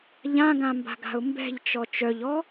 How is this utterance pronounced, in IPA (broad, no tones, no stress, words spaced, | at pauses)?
ʎãɡãmba̤ɡa̤ʊ̯ mbɛ̤ʎt͡ʃɔ t͡ʃœʎɔ